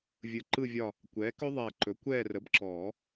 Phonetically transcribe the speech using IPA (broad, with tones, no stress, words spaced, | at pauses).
vʲɯ˨˩ǃɯ˦˨vʲɒ˦˨ | kʷɛː˩˥kɵ˦˥ðˤɛː˨˩ǃɵ˩˥ kʷɛː˦˨rə˩˥bǁɔː˨˩˦